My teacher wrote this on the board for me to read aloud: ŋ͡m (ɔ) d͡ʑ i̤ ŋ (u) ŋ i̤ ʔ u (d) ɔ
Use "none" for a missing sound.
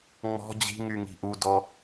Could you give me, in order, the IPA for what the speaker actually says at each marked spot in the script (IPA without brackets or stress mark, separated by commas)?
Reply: ɔ̤, y, d